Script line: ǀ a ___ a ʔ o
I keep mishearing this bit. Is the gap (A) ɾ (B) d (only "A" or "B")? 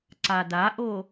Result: B